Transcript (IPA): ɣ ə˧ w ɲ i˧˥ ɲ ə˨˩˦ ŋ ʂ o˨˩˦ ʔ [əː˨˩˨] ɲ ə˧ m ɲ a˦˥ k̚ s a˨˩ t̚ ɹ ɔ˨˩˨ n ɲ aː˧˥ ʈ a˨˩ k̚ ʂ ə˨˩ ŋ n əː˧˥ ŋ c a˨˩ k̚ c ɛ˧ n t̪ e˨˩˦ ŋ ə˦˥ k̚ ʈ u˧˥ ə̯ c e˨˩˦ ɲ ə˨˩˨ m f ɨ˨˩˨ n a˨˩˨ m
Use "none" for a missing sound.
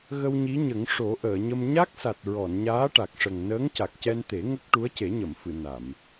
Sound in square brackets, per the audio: əː˨˩˨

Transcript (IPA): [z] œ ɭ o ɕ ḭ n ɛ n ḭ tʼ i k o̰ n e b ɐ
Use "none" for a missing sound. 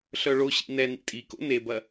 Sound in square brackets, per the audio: ɬ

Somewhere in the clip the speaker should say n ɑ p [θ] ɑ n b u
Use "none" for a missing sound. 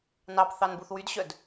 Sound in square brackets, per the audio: θ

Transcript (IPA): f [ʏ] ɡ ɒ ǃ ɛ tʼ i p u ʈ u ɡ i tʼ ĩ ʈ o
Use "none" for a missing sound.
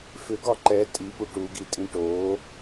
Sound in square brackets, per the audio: ʏ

